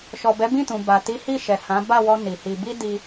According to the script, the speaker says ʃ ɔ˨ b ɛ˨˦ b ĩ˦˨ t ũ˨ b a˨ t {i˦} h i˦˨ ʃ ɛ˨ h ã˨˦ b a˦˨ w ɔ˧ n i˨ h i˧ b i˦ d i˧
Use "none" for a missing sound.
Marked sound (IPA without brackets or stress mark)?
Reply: i˨˦